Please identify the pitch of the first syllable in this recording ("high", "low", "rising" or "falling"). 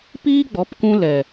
high